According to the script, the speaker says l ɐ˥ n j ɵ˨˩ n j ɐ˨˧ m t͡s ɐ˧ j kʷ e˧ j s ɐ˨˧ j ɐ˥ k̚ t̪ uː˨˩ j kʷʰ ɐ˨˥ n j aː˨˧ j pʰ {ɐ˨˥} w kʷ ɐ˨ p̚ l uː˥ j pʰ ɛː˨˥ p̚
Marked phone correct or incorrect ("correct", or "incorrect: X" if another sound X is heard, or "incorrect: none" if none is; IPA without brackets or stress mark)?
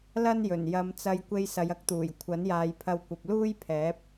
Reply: incorrect: ɐ˧